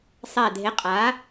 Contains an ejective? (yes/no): yes